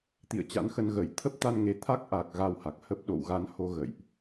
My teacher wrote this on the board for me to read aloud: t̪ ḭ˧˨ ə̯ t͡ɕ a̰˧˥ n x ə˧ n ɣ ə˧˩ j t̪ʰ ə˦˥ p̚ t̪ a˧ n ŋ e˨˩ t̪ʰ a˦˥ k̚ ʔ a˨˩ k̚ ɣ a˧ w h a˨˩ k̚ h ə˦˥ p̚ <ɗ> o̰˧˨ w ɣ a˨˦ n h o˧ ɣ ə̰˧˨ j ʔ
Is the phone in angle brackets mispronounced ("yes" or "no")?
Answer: no